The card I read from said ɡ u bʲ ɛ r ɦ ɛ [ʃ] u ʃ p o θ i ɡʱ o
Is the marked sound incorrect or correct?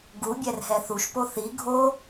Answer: incorrect